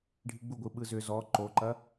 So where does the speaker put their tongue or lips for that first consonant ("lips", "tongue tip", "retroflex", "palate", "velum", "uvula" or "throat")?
retroflex